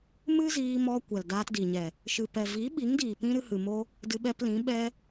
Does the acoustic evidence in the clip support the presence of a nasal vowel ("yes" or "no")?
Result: yes